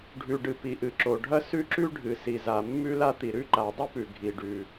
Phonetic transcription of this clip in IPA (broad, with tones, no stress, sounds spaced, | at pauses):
ɖʱ ʉ˩ ɖ ɨ˩ p i˩ ʔ ɨ˩ ǁ o˩ ɖʱ ɐ˥ s ʉ˥ ǁ ʉ˥ ɖʱ ɨ˩ s i˩ z a˩ mː ʉ˥ l a˥ t̪ i˩ ɾ ʉ˥ ǃ a˩ dˤ ɨ˥ p ʉ˩ ɡʱ i˩ ɖ ʉ˩